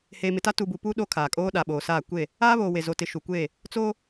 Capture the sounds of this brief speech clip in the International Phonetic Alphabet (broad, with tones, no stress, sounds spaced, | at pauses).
h eː˨ m ɪ˨ t a˦ t uː˨ b u˨ p uː˦ ɗ o˦ kʰ aː˨ kʼ oː˦ ɗ a˨ ɓ oː˨ s aː˦˨ kʷ e˦˨ | aː˦ β oː˨ w e˨ z o˨ t ɪ˨ ʃ u˨ kʷ eː˦˨ | t͡s oː˦